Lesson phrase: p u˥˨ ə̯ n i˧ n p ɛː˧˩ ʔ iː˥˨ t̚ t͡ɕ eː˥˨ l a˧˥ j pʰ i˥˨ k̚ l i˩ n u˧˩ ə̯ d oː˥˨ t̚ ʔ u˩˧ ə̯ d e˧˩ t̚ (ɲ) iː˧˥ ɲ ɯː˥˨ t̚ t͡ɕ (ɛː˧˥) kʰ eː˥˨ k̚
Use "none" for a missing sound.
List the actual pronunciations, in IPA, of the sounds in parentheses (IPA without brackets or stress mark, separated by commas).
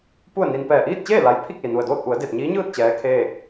ɲ, ɛː˧˥